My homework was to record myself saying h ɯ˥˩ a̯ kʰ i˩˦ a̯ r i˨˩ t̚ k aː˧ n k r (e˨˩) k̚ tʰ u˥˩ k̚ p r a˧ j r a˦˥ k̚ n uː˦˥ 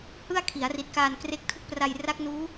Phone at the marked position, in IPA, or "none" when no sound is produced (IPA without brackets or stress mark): e˦˥